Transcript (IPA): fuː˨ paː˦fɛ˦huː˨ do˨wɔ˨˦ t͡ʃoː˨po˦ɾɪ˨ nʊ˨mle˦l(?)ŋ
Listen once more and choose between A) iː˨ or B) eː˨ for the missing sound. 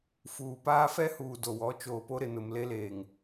B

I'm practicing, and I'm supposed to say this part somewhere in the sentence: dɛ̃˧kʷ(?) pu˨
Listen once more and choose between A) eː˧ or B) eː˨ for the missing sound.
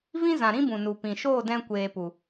B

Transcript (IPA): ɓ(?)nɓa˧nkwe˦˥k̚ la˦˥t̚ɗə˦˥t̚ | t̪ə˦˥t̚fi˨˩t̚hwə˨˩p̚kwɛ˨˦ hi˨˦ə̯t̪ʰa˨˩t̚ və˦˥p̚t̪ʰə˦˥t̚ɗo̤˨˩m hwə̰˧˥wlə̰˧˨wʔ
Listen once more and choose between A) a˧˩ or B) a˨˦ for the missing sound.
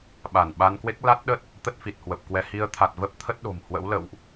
A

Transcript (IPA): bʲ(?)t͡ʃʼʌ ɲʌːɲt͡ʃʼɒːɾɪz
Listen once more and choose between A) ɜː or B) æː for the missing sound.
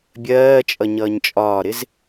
A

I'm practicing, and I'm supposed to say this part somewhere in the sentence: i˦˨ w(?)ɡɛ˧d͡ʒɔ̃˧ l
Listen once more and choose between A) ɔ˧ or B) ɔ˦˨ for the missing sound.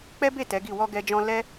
A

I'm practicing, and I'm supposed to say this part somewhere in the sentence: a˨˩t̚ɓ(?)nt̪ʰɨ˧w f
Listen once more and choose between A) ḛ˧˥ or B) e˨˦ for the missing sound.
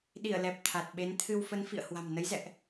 B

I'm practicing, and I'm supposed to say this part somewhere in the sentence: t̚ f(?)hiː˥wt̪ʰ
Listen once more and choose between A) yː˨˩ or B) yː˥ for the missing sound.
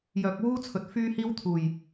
B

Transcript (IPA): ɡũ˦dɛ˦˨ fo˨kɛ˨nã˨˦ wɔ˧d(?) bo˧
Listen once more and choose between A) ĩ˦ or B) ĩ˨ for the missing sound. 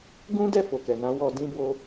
A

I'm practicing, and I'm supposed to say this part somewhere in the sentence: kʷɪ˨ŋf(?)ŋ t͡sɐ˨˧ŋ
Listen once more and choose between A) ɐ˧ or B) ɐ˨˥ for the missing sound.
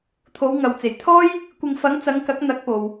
B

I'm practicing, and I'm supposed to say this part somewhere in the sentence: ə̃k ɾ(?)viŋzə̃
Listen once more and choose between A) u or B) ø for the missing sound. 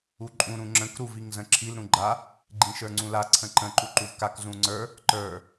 A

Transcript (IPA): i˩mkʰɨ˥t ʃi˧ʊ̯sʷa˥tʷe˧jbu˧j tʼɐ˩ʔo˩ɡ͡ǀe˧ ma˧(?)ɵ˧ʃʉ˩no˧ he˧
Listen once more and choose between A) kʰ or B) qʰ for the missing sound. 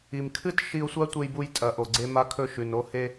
A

